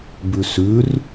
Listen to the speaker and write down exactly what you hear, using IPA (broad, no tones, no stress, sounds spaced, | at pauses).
b ʉ s ʉ r